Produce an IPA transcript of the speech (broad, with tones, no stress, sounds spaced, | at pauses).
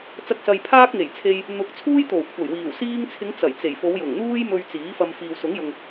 t͡s ɐ˧ k̚ s ɐ˨ j pʰ aː˥ k̚ ŋ e˨˩ j t͡sʰ e˧ j | n̪ ʊ˨˥ k̚ t͡sʰ uː˥ j t̪ o˨˩ w kʷʰ ɐ˨˩ j w iː˨˩ w s iː˧ ŋ t͡sʰ ɪ˨˧ ŋ t͡s ɐ˨˩ j t͡s e˨˩ j f o˨˧ w j ʊ˨˩ ŋ n̪ uː˥ j m ɵ˧ ɥ t͡s iː˨˥ f ɐ˧ m f iː˨ w s ʊ˨˥ ŋ j ʊ˨ ŋ